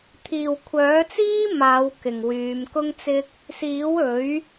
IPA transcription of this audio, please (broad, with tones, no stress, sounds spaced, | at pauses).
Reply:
t̪ʰ iː˨ w kʷʰ œː˨˥ t͡s iː˥ m aː˨˧ w k ɪ˨ ŋ w yː˨˧ m k ʊ˥ ŋ t͡s ɪ˥ k̚ | s iː˨˥ w ɵ˨˥ ɥ